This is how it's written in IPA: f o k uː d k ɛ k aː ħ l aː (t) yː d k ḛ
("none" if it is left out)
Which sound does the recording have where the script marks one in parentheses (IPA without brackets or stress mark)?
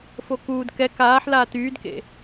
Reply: t